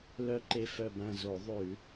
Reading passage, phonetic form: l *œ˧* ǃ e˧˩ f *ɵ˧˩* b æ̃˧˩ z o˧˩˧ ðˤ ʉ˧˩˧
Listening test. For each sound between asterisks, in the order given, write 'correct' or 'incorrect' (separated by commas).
correct, incorrect